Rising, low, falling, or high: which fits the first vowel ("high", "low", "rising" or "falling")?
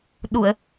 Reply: low